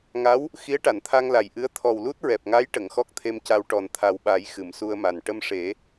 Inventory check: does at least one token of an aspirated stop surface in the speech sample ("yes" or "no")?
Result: yes